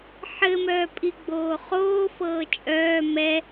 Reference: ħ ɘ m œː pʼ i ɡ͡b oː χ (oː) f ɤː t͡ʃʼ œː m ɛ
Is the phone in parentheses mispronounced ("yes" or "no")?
no